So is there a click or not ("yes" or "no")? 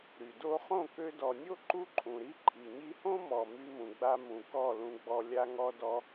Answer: yes